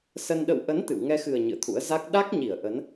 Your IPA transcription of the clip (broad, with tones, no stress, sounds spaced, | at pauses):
s ə˧ n ɗ ə̰˧˨ w ʔ ə˨˦ n t̪ ɨ̰˧˨ w ŋ ɛ˧ x ɨ˨˩ ə̯ ɲ ɨ̰˧˨ ə̯ t̪ʰ ṵ˧˥ ə̯ z a˦˥ k̚ ɗ a˦˥ k̚ ɲ i˧˩ ə̯ ʔ ə˨˦ n